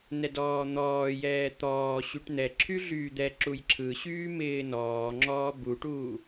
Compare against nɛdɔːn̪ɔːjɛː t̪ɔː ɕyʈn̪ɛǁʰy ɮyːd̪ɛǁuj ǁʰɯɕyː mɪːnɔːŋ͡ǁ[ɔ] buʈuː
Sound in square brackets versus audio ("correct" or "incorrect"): incorrect